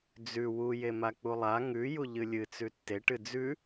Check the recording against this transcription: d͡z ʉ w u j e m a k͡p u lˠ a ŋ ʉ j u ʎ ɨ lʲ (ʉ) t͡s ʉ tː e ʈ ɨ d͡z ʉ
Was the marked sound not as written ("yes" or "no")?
yes